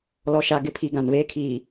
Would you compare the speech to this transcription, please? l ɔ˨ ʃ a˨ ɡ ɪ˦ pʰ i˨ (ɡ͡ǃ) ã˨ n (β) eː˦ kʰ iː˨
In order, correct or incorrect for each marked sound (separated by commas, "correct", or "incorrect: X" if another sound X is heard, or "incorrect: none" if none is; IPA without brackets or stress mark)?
incorrect: ɡ, correct